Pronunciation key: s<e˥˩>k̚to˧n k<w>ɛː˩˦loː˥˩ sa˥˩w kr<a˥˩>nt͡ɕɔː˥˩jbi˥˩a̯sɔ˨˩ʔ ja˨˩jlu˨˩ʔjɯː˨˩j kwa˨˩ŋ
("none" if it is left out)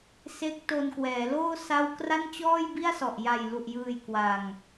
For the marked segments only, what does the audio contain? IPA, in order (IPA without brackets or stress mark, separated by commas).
e˦˥, w, a˥˩